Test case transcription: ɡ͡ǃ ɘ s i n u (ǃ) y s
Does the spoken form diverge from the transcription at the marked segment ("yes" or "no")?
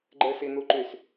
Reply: no